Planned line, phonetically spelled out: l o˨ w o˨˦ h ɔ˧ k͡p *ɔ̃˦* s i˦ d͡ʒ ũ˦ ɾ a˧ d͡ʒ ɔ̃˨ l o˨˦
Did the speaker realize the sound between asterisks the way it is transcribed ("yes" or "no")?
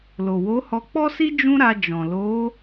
no